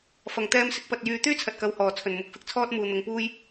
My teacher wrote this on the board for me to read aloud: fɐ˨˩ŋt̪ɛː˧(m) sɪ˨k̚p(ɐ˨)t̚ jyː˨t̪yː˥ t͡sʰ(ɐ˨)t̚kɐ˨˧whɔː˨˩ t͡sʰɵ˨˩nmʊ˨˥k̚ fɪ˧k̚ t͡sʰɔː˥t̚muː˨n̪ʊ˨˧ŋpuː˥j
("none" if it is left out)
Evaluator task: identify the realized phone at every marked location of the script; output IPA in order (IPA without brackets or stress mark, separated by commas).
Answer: m, ɐ˨, ɐ˨